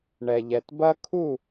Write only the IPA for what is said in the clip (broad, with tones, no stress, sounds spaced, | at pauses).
ɳ ɛ˨ ʎ ɛ˨ t b ɐ˦ kʰ u˦˨